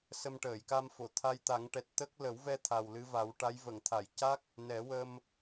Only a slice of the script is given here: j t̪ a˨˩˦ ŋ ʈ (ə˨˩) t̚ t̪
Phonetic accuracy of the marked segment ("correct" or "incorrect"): incorrect